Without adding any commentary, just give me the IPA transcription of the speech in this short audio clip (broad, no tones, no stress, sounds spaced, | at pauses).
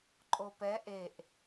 ǃʼ o p ɛ ʔ e ʔ